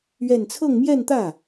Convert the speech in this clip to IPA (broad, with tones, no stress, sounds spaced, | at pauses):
ɥ ɛ˥˧ n t͡sʰ ɤ˥˧ ŋ m j ɛ˥˧ n t̪ ä˥˩